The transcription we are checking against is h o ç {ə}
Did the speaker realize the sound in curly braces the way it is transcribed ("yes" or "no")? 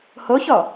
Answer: no